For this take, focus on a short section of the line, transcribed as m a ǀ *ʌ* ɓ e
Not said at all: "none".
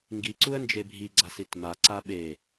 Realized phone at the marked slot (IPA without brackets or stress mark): a